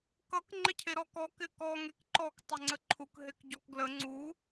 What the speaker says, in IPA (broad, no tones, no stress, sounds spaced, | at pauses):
k ʌ k ŋ͡ǃ ɪ cʰ e ɾ ɔ k ɔ k ɪ k ɔ ŋ e k ǃ ɔ k tˤ ɪ ŋ͡ǀ ə ǃʰ u k ɦ e k ɟ ɔ k ɡ l ə ŋ͡ǀ u